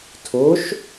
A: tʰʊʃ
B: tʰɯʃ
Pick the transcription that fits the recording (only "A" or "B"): A